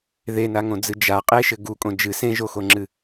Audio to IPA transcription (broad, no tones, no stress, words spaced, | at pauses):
ðenaŋõd͡zɨ d͡ʒa qʼeʃɘ ɡukʼõ d͡ʒɨ sẽʒoxoŋ͡ǁɨ